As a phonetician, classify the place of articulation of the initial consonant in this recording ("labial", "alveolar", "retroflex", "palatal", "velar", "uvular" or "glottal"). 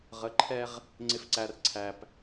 uvular